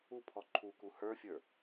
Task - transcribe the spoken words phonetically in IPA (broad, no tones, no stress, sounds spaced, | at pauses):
u pʰ ɔ ǃʰ u k u h ə˞ fʲ ə˞